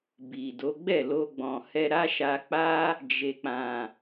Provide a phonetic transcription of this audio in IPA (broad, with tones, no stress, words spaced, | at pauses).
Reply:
bi˨do˨˦ ɡ͡bɛ˦˨lo˧ɡ͡bɔ̃˨hɛ˧ ɾa˦ʃa˧k͡pa˦ | d͡ʒe˨k͡pã˨